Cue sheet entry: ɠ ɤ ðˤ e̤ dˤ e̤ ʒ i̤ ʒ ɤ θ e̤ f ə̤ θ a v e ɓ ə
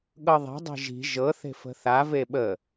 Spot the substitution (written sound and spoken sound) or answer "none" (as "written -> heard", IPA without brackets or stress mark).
none